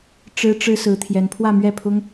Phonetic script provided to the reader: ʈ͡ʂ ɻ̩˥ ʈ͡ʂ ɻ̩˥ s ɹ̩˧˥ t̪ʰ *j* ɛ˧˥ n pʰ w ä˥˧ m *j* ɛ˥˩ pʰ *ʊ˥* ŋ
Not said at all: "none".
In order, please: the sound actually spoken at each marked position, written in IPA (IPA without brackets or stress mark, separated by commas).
j, ɥ, ʊ˥